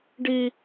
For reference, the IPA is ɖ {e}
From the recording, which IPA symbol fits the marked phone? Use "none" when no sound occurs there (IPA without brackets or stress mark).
i